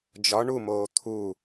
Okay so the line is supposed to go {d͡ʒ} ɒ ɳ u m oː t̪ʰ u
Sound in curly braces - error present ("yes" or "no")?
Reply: no